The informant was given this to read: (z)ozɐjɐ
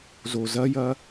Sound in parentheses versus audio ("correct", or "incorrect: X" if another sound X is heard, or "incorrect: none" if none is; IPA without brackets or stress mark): correct